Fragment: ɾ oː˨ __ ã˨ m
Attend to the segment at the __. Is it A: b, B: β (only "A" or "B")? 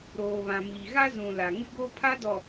B